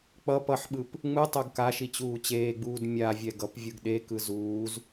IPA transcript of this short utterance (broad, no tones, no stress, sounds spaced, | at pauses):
k͡p ʌ p ʌ ħ ɓ ɯ p | ŋ͡m ɯ tˤ o ɡ k a ʃ i t͡ɕ uː t͡ɕ eː ɡ͡b uː d mʲ a vʲ ɛ ɡ ʌ p vʲ ɯ ɡ ɗ e k ɯ z uː z